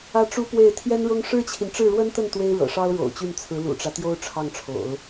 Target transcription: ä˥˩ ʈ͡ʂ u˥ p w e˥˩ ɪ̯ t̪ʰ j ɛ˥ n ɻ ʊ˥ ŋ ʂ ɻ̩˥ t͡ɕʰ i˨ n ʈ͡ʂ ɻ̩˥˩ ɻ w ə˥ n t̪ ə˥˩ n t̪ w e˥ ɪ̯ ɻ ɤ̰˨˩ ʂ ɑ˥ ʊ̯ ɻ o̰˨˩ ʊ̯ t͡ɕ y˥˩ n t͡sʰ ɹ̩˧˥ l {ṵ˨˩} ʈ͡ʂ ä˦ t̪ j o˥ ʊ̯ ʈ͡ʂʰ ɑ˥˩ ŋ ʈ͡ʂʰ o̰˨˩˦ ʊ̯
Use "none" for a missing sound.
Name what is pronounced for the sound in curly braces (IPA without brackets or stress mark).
ṵ˨˩